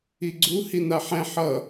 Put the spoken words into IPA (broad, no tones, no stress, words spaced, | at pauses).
iɡ͡ǀu hinaħɛ̃ ħʌ